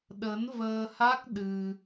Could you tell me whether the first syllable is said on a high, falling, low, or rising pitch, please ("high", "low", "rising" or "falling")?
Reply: rising